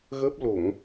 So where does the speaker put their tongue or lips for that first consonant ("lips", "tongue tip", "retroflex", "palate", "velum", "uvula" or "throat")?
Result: velum